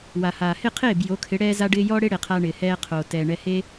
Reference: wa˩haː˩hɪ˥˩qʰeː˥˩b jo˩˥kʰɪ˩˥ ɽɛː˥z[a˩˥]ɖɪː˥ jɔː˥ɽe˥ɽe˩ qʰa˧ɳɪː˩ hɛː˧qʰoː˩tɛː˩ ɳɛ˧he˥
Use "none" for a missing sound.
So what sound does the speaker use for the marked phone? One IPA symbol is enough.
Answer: a˥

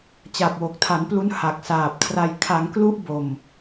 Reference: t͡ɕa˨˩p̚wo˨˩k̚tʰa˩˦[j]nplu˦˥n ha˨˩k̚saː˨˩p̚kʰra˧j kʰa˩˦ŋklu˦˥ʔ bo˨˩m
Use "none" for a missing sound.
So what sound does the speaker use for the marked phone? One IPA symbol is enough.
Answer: none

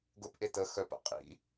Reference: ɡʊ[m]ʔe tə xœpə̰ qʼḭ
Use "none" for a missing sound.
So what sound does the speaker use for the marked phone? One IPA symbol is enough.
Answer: p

